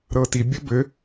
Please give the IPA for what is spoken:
ɾ ɤ t i bʲ ɘ b ɘ

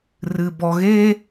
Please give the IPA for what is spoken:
r ɨ b ɔ ɣ e

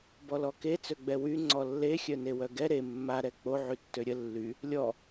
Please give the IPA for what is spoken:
b ɔ l ɔ k e t͡s ø ɡ͡b ɛ w y ŋ͡ǀ ɔ lː e xʲ œ n e w œ ɡ ɛ ɾ e mː a ɾ ɛ k͡p o ʕ y tː ø ɾʲ ə lː y | lʲ ɔ

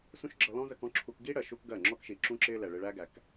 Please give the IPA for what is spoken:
s ũ˦ ʃ ɡ͡ǁ ʌ˧ l ɔ̃˦ z ə˧ k ɔ̃˦ ǁʰ u˧ k ɡ i˦ ɽ ɜ˨ ʃ u˧ k ɡ ɜ˦˨ ŋ͡ǁ ɔ˦ k ʃ i˨ ǁ ũ˦ ǁ ɪː˦ l ɛ˨ ɭ ɪ˧ ɭ æ˦ ɡ æ˨ k

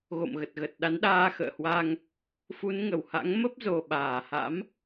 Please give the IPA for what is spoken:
ɣ o̰˧˨ m ɣ ə˨˩ t̚ ɣ ə˨˩ t̚ ɗ a˨˦ n ɗ aː˧ x ə̰ː˧˨ h w a˧ ŋ | f u˨˦ n ŋ ə˧˩ w h a̰˧˥ ŋ m ə˦˥ p̚ z o˨˩ ɓ aː˧˩ h a̰˧˥ m

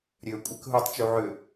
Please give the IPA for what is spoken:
ɾʲ ø kʷʼ ɛ k ɦ u tˤ t͡ʃ u ʕ ø

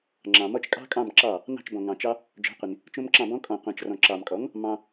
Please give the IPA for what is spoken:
ŋ͡ǁ ɑ̃˨ m ɔ˦ t͡ʃ kʼ ɑ̤˦ kʼ ɑ̃˦˨ m ǁ ɑ˦˨ | n ɑ̤˦˨ t͡ʃ b ɔ̃˨ ŋ ɑ̃˨ t͡ʃ ɑ˦ | d͡ʒ ɔ̤˨˥ qʷ i˨ n | t͡ʃ õ˦ m ǁ ɑ̃˦˨ b ɔ̃˦ kʼ ɔ̃˨ qʷ ɑ̃˨ t͡ʃ r ɔ̃˨ ǁ ɑ˨ m kʼ ɔ˨˥ ŋ | m ɑ̃˦

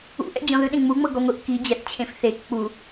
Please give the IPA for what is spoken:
ṵ ʔ ɛ̰ d͡ʑ ɔ̃ ð ɯ ɗ ẽ ŋ͡m u ŋ͡m ɤ ɡ ɔ ŋʷ i ʔ k i d͡ʑ ɛ θ t͡ɕʰ ẽ f θ e k k͡p u

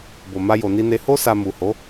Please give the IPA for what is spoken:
b o˨ m a˧ j o˨ n i˧ n e˧ h o˧ s a˨ m u˨ h o˨˦

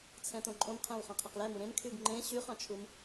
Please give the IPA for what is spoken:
t͡sʰ ɛ̃ t õ ǃʼ õ m qʰ ɛ̃ w χ ɑ̃ qʰ ɛ q l ɛ m u ɾ ẽ m kʰ y ɡ ŋ͡ǃ ẽ ɕ y χ ɑ̃ t͡ʃʰ u m

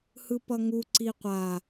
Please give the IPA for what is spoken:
h ɯ p ʌ ŋ u ǀ i qʷ a

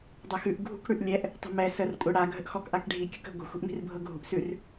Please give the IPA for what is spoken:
dˤ ɤ x ʉ ʔ ɡʱ ṳ k ɽ ʉ ʔ lʲ ɛ ʔ | tˤ ə̤ m ɛ s ə r kʷʼ ə ɽ a ɡʱ ə ʔ x ɔ k ʔ a k ɖʱ i kʲ ʊ k ə̤ ɡʷ ə̤ xʷ i̤ ʔ m i̤ r bʱ ɤ ɡʱ ṳ ʔ s ʉ r

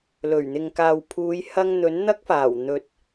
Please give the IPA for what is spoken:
l ɵ˨˩ ɥ n̪ ɪ˨ ŋ k aː˨ w pʰ uː˨˧ j h ɐ˧ ŋ n̪ ɵ˨˥ n n̪ ɐ˥ k̚ f aː˨˩ w n̪ ɵ˨˥ t̚

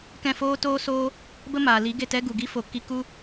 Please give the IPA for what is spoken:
k ɛ̃˦˨ f oː˦ t oː˦ s oː˦ | b ə˦ m aː˨ l i˨˦ ɡ e˦˨ t ɛ˦ ɡ u˨ ɡ i˦ f o˨ k i˧ k u˦

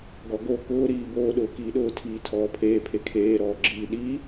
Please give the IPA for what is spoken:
ɡ ɔ ɡ o k ʊː ɾ iː b oː ɗ ʊː k iː ɗ ʊː tʰ iː tʰ ɔː pʰ eː pʰ e kʰ eː ɾ ɔː ɡ͡ǁ iː ɗ i

